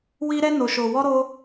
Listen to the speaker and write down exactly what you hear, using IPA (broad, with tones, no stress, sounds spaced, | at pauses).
w i˦ ɾ ɛ˦ n o˧ ʃ o˧ w ɔ˦ ɾ o˦